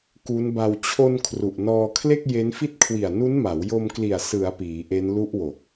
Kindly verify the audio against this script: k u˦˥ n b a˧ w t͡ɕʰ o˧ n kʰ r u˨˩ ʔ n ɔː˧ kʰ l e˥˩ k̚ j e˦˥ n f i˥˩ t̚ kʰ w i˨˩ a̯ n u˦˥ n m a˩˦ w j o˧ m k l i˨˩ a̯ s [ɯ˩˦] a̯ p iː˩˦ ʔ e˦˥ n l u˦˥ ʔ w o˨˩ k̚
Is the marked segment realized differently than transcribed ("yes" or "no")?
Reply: no